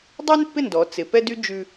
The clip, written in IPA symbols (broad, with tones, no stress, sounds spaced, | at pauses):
dˤ ʉ˥ n pː ɪ˥˩ n d ɔ˩˧ t͡s ɪ˩˧ p ɛ˥ d y˥ d͡ʒ ʉ˥